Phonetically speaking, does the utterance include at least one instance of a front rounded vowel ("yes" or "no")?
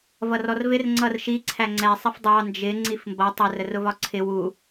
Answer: no